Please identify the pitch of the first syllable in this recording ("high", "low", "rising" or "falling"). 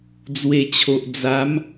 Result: low